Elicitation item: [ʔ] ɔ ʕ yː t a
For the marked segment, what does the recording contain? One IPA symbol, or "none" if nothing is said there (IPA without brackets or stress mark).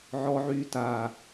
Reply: ʕ